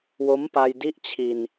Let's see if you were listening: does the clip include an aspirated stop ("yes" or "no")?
yes